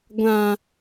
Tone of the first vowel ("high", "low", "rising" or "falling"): low